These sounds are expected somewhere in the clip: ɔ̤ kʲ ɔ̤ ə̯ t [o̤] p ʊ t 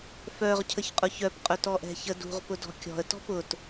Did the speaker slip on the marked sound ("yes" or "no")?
yes